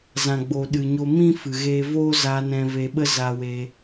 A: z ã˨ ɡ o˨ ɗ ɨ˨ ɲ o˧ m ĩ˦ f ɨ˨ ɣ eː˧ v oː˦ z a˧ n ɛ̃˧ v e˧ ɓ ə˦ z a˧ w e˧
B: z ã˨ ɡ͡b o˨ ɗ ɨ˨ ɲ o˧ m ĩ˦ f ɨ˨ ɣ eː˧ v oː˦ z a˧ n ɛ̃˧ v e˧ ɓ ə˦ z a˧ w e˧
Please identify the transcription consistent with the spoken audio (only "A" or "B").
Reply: B